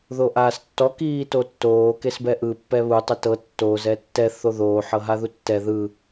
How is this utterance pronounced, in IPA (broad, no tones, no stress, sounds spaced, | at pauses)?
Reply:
ð o ʔ aː s tː ɔ k iː t o tː oː k e s b ɛ ʔ ɯ pː ɛ β u tˤ ɛ t ɤ tː oː z ɛ tː ɛ θ o ð oː ħ ɤ ɦ a ð u tː ɛ ð ɯ